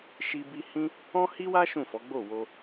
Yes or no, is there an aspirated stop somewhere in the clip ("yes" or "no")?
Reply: no